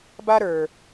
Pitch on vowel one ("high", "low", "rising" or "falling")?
high